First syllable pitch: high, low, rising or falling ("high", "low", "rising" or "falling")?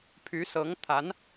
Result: rising